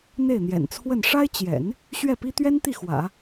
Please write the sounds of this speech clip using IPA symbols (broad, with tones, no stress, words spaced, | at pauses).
n̪e˥˩ɪ̯n̪jɛ̰˨˩nt͡sʰwə˥˩n ʂa˥ɪ̯t͡ɕjɛ̰˨˩˦n | ɕɥɛ˥˩pi˥ t̪ɥɛ˥nt̪i˥˩ xwä̰˨˩˦